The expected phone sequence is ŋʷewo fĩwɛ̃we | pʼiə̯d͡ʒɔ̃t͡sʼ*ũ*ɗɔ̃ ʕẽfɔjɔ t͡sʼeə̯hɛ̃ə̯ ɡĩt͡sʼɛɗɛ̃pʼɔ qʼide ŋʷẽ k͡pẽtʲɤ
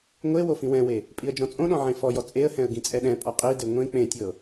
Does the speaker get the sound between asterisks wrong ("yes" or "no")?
yes